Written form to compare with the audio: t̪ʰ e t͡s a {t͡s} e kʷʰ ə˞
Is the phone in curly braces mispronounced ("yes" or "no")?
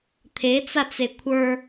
no